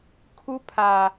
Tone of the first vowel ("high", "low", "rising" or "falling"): high